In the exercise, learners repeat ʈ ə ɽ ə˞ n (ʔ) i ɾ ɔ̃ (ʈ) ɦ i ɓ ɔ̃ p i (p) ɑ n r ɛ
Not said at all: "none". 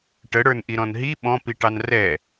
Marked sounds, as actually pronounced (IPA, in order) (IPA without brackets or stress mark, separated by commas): ʔ, n, ʈ